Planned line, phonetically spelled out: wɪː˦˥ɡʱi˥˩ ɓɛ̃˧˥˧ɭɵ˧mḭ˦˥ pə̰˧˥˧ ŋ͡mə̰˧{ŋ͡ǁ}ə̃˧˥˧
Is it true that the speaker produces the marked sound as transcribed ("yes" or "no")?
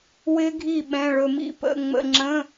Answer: yes